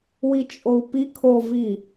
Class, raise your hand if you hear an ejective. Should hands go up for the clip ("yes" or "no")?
yes